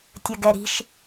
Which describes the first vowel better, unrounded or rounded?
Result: unrounded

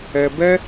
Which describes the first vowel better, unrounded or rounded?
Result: unrounded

